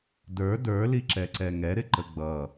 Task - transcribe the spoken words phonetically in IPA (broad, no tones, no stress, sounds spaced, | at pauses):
d ə˞ d ə˞ l i ǁ ɛ ǀ ɛ ŋ ɛ ɾ ɪ ǃ ə ɡ͡b ʌ